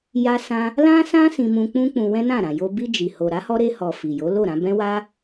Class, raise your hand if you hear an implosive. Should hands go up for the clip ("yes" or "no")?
no